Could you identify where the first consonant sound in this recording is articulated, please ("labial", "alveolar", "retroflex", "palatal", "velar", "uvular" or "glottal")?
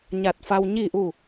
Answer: palatal